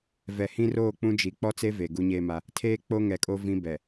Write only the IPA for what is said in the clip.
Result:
v ɛ˨ h ĩ˦ r oː˦˨ k͡p ũ˦ d͡ʒ i˨ k͡p ɔ˦ t͡s e˦ v eː˨ ɡ u˦ ɲ eː˦ m a˦ | tʰ eː˦ k͡p o˦ ŋ ɛ˨ kʼ o˦ v ĩ˦ b ɛ˨

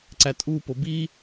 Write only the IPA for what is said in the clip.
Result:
ǀ æ tʼ u p o b i

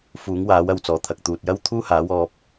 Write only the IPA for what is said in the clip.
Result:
f uː˨˥ ŋ w aː˨˥ w ɐ˨˧ w t͡s ɔː˨˩ t̪ʰ ɐ˨ k̚ t̪ uː˨ t̚ j ɐ˥ w t̪ʰ uː˥ h aː˨˥ w ɔː˧ p̚

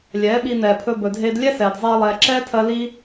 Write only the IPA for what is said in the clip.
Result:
lʲ ɛː˨˦ ɓ i˧ n ɛː˨ pʰ ɵ˧ b ɵ˨ dʱ eː˧ d lʲ ɛ˦ s ɛː˨ d zˤ eː˧ lˠ ɛː˨ ǁ ɛː˦ tʰ ɜ˧ l i˦

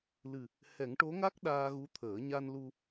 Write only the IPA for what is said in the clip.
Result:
l ɨ˨˩ | h ɛ˨˩˦ ŋ ʈ o˧˥ ŋ a˦˥ k̚ ɗ aː˧ ɣ u˧˥ t̪ʰ əː˨˩˦ ɲ a˧ n l u˧

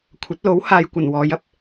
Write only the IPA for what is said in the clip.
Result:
kʷʰ ɐ˨˥ t̚ l o˨˥ w h aː˨ j kʷ ɐ˨˩ n w ɔː˨˧ j ɐ˧ p̚

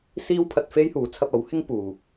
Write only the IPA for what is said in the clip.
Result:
s iː˥ w pʰ ɐ˧ t̚ f e˥ j h uː˨˥ t͡sʰ ɐ˧ p̚ ɐ˨˥ w h ɪ˥ ŋ p uː˨

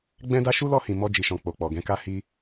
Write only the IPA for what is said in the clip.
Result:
ɡ͡b ɛ̃˦ d a˦ ʃ u˦ l ɔ˧ h ĩ˨ m ɔ˧ d͡ʒ i˨ ʃ ɔ̃˨ k͡p o˨ k͡p ɔ˨ ɡ ɛ̃˨˦ k a˦ h i˦

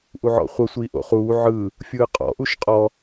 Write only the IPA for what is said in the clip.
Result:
ʔ u ʕ ɔ̰ χʷ ɤ sʷ iː ʔ o̰ χ uː ʕ ɯ | fʲ ɯː qʼ ɔ̰ ʔ u ʃ qʼ ɔ

